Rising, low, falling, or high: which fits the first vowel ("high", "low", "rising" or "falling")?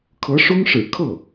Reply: rising